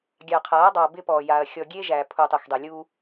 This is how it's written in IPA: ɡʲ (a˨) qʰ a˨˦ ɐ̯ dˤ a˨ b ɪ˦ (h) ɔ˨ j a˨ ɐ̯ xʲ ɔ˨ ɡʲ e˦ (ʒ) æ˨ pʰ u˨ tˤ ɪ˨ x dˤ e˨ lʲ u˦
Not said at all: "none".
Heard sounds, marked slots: ɑ˨, p, ʒ

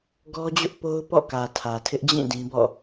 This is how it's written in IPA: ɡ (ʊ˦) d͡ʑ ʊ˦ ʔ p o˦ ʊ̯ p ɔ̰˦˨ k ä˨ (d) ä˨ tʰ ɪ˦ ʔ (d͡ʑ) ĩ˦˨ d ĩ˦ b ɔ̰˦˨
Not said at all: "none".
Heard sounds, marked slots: ɔ˦, tʰ, d͡ʑ

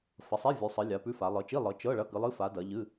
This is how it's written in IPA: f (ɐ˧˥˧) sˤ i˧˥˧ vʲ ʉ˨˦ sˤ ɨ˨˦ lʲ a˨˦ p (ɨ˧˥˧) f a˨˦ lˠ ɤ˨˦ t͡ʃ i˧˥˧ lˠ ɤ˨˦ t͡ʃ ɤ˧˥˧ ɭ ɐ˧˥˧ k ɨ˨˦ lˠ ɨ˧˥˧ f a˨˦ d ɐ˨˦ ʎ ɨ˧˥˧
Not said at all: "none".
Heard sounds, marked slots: ɐ˨˦, ʉ˧˥˧

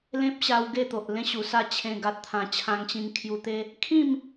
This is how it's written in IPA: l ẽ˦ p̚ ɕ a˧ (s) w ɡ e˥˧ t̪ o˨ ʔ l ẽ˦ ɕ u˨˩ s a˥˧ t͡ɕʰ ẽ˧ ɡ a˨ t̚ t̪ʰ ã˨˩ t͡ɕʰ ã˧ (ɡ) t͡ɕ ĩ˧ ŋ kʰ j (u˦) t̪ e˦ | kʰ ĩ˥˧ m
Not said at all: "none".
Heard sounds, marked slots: none, ŋ, u˧

